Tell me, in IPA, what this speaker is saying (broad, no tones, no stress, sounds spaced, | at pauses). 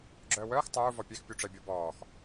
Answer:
ɡ͡ǁ œː w œː x tˤ uː v ɔ pʲ ɛ x pʲ u ʈ͡ʂ ɛ bʲ ɔ b ɔː x